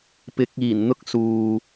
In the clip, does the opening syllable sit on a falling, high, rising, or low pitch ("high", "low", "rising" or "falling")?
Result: rising